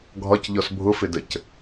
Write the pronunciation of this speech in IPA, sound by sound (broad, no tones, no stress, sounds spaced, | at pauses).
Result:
ɡʱ ɒ c ʎ ɔ s bʱ ʊ f ɪ d ə c